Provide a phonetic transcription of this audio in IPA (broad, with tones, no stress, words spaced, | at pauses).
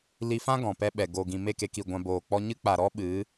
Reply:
li˧fã˦ ɡɔ̃˨pɛ˦ɓɛ˨ ɡo˨ɡĩ˨ me˦˨ke˧ki˨ ɡʷã˧boː˨k͡pɔ˦ ɲɨ˦k͡pa˨ɾɔ˦ ɓɨ˨˦